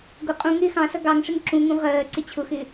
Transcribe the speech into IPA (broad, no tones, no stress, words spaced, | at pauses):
ɡʊ qʼũ ŋɪːxɑ̃sʌ ɡɑŋʂɪŋ ǁũŋũ ʁɜː ǀɪt͡ɕʰʊxɪː